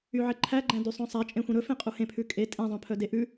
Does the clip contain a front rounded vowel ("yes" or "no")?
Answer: yes